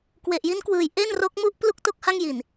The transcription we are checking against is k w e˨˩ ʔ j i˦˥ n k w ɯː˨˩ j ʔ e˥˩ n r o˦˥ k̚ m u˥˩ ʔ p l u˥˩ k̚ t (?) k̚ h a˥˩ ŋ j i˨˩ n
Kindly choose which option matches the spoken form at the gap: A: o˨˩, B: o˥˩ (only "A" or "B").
B